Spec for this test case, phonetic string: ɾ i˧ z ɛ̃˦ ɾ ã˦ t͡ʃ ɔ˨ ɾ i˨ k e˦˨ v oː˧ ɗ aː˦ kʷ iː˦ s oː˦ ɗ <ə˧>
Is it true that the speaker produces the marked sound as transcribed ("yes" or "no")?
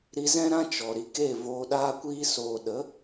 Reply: no